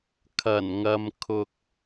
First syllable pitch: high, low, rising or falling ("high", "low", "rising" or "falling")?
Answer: low